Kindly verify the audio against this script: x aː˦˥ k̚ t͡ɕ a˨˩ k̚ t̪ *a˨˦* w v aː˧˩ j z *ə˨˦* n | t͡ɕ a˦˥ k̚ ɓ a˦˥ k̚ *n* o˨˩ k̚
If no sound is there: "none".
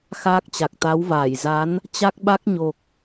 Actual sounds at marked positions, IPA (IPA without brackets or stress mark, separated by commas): a˨˦, a˨˦, ɲ